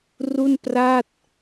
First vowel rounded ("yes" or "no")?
yes